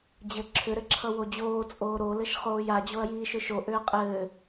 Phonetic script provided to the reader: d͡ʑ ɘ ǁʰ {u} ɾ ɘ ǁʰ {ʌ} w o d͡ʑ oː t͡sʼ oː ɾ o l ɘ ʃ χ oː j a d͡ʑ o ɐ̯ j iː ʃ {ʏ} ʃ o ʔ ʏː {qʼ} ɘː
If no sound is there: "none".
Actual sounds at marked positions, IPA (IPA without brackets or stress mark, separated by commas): ʏ, ʌ, ʏ, qʼ